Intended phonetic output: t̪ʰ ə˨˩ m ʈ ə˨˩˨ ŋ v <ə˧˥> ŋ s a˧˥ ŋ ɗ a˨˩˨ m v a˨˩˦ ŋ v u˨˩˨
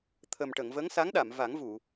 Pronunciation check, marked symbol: correct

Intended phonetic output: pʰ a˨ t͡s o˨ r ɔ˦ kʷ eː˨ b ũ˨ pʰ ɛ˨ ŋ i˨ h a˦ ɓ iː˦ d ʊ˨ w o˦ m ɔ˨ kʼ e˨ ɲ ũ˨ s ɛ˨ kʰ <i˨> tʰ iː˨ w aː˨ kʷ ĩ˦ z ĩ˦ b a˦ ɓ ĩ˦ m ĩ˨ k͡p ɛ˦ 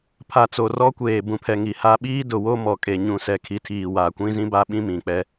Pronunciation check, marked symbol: correct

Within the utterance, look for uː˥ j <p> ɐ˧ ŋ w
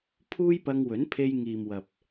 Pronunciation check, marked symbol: correct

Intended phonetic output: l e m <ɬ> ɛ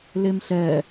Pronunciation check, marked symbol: correct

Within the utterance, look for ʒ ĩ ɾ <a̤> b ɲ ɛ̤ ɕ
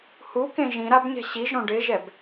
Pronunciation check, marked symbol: incorrect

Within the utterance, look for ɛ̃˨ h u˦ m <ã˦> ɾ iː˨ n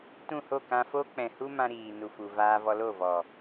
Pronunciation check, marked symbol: correct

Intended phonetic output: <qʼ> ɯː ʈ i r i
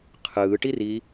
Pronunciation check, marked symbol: incorrect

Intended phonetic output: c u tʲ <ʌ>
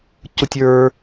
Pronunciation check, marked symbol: incorrect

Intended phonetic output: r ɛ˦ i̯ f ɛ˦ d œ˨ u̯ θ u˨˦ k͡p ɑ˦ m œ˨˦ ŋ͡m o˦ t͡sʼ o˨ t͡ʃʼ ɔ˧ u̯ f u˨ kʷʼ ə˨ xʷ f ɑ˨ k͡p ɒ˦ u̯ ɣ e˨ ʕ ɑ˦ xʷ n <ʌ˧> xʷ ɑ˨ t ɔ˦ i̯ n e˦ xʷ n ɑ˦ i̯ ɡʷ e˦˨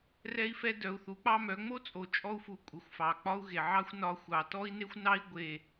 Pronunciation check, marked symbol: incorrect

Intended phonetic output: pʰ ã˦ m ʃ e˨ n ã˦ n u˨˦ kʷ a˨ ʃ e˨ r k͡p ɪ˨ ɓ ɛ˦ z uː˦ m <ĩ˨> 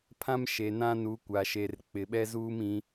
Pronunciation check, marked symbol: incorrect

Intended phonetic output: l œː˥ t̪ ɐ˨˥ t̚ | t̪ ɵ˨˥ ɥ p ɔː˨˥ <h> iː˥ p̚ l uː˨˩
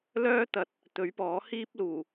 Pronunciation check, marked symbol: correct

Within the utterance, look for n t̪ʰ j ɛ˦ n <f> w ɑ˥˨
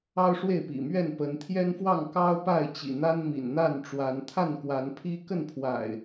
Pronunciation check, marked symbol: correct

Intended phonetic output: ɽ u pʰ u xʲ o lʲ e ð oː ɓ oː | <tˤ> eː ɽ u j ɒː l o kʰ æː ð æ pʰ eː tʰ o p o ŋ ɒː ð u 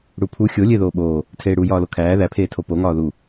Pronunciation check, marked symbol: incorrect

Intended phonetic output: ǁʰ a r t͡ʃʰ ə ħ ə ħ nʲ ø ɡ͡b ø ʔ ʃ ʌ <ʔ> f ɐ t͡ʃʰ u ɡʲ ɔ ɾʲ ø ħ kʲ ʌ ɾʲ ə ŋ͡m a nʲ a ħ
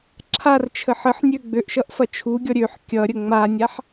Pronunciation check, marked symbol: correct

